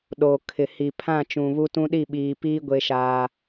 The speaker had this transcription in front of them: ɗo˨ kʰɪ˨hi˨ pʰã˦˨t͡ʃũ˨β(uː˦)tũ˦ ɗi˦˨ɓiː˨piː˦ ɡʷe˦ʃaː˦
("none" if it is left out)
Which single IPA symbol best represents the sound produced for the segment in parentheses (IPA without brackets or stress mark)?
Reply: u˦